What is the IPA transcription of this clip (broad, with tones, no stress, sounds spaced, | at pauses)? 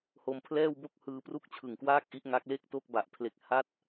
h o˧ m pʰ l ɛː˥˩ w b o˥˩ k̚ h ɯː˧ p r u˥˩ k̚ t͡ɕʰ ɯ˨˩ ŋ k w aː˥˩ k̚ ʔ i˦˥ ʔ ŋ a˦˥ k̚ l e˥˩ k̚ t o˥˩ k̚ b a˨˩ ʔ pʰ l e˨˩ k̚ h a˥˩ t̚